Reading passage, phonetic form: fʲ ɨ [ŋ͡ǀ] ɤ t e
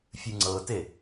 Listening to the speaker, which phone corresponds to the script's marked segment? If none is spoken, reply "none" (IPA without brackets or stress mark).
ŋ͡ǀ